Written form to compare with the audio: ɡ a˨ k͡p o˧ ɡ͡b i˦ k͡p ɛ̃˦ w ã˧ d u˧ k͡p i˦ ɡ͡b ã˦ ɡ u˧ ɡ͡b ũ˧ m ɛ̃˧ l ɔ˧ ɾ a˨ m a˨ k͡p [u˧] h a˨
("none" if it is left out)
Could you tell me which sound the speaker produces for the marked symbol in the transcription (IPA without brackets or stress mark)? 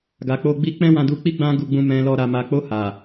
o˧